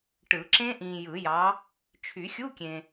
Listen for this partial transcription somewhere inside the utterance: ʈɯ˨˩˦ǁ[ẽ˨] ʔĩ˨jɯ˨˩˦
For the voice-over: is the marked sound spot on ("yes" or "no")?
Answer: no